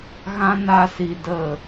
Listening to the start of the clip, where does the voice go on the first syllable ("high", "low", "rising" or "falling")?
high